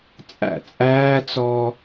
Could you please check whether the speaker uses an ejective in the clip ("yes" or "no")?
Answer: yes